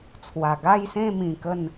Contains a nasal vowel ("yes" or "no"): yes